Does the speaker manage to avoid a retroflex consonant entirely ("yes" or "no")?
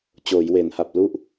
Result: yes